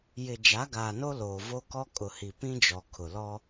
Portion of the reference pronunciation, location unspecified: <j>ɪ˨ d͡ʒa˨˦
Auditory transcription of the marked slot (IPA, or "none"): j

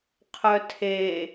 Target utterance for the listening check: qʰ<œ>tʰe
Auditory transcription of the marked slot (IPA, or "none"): œ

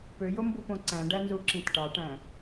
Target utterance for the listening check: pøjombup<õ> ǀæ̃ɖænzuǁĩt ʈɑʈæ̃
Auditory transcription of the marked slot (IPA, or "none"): õ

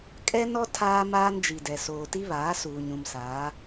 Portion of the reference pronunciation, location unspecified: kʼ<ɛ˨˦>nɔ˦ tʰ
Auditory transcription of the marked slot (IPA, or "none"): ɛ˦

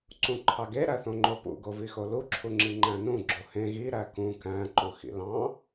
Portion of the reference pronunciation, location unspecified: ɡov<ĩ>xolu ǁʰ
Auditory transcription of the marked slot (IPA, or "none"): i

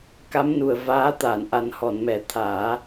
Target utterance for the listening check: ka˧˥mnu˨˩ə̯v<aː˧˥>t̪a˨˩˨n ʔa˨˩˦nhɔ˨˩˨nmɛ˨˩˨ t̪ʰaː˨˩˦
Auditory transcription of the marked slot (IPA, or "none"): aː˧˥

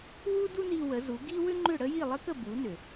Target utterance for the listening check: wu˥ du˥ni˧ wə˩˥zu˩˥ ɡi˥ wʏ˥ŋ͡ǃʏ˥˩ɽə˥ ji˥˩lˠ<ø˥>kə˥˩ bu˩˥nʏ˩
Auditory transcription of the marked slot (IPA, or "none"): ə˥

